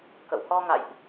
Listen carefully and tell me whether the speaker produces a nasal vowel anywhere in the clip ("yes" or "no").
no